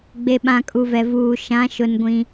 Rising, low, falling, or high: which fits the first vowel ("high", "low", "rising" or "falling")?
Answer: low